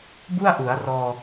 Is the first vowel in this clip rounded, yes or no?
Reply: yes